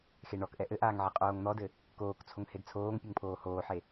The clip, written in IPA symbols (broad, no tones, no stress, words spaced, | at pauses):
xeɳɔkʔɛ ʔɘʔaːŋ ʕeqʼoːŋn̪ɔdɘ | koːkt͡sʰoŋ hedt͡sʰoːŋpʲɨŋ pʰoːhoːħe